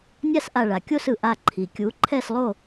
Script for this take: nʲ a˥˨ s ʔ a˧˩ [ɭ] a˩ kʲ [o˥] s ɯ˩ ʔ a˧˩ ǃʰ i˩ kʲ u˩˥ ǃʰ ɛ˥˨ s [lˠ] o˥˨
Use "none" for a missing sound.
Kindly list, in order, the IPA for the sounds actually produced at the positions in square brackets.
ɭ, o˥˨, lˠ

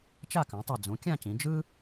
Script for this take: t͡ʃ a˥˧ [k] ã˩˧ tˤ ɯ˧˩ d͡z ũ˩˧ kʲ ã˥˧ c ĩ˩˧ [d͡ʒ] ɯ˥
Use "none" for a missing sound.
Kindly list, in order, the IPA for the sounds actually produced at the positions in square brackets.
k, d͡ʒ

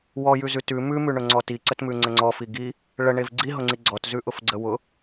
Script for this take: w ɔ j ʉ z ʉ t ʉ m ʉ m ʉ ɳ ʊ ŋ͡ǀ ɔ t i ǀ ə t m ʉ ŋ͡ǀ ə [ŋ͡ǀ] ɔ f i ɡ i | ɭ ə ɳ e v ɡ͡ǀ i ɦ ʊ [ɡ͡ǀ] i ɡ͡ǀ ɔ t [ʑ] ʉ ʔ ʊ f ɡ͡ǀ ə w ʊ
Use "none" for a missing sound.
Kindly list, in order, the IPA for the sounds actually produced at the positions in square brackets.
ŋ͡ǀ, ŋ͡ǀ, z

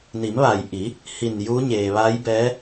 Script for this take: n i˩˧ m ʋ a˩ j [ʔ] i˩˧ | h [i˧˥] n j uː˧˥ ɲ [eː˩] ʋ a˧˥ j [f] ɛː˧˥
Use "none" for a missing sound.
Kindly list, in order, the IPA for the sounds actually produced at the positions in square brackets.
ʔ, i˧˩, eː˩, b

